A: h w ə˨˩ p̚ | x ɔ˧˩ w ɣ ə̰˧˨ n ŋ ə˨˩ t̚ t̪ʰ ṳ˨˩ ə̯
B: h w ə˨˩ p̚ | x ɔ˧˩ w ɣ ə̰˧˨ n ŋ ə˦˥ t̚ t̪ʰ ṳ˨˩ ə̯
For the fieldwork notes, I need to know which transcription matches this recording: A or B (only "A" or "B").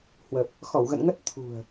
B